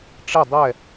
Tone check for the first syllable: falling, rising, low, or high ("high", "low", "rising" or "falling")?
falling